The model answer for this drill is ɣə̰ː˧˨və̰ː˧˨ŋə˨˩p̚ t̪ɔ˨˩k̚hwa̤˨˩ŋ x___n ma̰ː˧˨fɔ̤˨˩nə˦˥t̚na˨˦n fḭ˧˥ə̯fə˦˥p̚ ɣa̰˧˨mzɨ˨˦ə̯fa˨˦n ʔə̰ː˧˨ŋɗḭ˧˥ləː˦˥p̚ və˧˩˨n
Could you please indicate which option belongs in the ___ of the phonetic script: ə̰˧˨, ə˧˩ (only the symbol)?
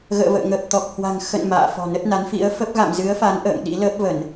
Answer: ə̰˧˨